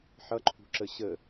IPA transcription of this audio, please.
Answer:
ħ ʌ ǃʰ ṳ ǁ ə ɕ ə

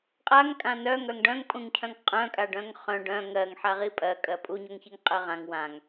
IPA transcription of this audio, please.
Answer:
qʼ a ŋ kʼ ã n œ ŋ œ ŋ ɖ œ̃ ŋ pʼ ũ ŋ cʰ œ̃ ŋ qʼ œ̃ kʼ a ɖ œ̃ ŋ χ œ̃ ɖ œ̃ ŋ ɜ ŋ ħ a ʁ i pʼ ɜ kʼ ɜ pʼ u ɲ o ŋ ç i ŋ qʼ ɜ ʁ ã ŋ w ã ŋ

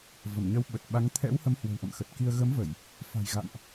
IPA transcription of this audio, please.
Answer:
v ə˧˩ m ɲ ə˨˦ w ɓ ə˨˩ t̚ ɓ a˨˦ ŋ t̪ʰ ɛ̰˧˥ w h ə˨˦ m h w ə̤˨˩ w ʔ ə̰˧˨ m x ə˨˩ t̚ k i˧ ə̯ ɣ ə˨˦ m v ə˧˩˨ j | f a̤˨˩ j ɣ a̰˧˨ m ʔ

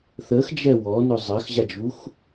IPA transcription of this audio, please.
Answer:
θ ə x d͡ʒ ɛ w ɔ n ʊ zˤ ɐ x ʑ a d͡ʒ u x

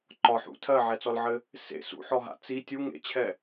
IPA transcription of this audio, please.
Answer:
ǃ ɒ ħ ṵ tʰ ɜ ʕ ɛ t͡s ɔ l ʕ ɘ | s ḛ s ṵ ħ ɔ ɦ a̰ t͡s i tʲ u ŋ ḛ t͡ɕʰ ɛ

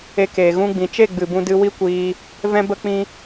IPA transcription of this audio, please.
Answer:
e˧ k eː˨ ɣ ũ˧ ɡ͡b ĩ˨ t͡ʃ e˦˨ ɡ͡b ɨ˨ b ũ˧ d ɨ˧ w i˦ kʷ iː˧ | v ɛ̃˦ b ə˦ k͡p ĩ˦

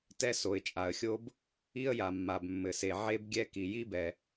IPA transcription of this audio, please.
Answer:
t ɛ˥ s o˩ ɪ̯ t͡ʃʼ a˩ ə̯ xʲ o˥ b | i˥ ə̯ j a˩ mː a˩ b mː ɘ˩ s e˩ ʕ e˥ b ɡʲ ɛ˥ k i˩ j i˥ b ɛ˩

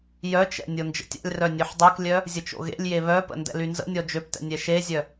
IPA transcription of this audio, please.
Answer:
j œ t͡ʃ ɛ̰ nʲ o n d͡ʒ ə̰ tʲ a̰ lʲ r œ nʲ ø ħ dˤ ø k lʲ œ | zʲ ə t͡ʃ o̰ ɣ ḛ lʲ j e β œ p ə̰ n d ɛ̰ l y n z ə̰ nʲ ɔ d͡ʒ ø p t ɛ̰ nʲ ɛ ʃ e zʲ œ

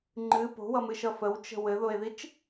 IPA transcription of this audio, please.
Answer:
ŋ͡ǃ ɨ p o̤ w ʌ m ɨ ʃ ʌ f ə w t͡ʃ ə̤ w ɘ ð o e̯ ð i t͡ʃ

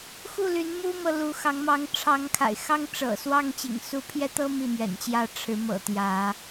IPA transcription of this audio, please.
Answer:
x u˥˨ l y˨˦ n m u˦ m ɤ˨ l u˨˦ x ɑ˨˦ ŋ m ɑ˨˦ ŋ ʈ͡ʂʰ ɑ˨˦ ŋ kʰ a̰˨˩ ɪ̯ x ɑ˦ ŋ ʈ͡ʂ ɤ̰˨˩ s w ɑ˥˨ ŋ t͡ɕ ḭ˨˩ ŋ s u˨˦ pʰ j ɛ˦ t̪ ɤ˦ m i˥˨ m ɥ ɛ̰˨˩ n t͡ɕ j ä˥˨ ʈ͡ʂʰ ɻ̩˨˦ m ɤ̰˨˩ t̪ j ä˨˦

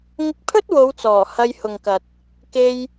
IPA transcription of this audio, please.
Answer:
ŋ ɪ˧ k̚ pʰ ɵ˥ t̚ w o˨˧ w t͡s ɔː˨˩ h ɐ˧ j h ʊ˨ ŋ k ɐ˨ t̚ | k e˧ j

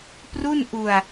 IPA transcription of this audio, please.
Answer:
p r u˥˩ n ʔ u˧ a̯

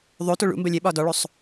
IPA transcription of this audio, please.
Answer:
ðˤ o t o ɭ ṵ m b ə lʲ e ɓ ɒ d ɔ ɭ o sˤ

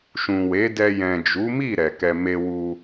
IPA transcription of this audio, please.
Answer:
ʃ ũ˨ w e˨˦ d ɛ˧ j ɛ̃˨ d͡ʒ u˨˦ m i˦˨ ɾ ɛ˨ k ɛ˧ m e˧ w u˧

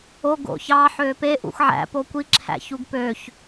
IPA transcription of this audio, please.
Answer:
o ɡ o̰ ç ɑ ħ ø p e ʔ ṵ x ʕ æ̰ p o kʷ i ǁʰ æ̰ ç u ɡ p ø ç

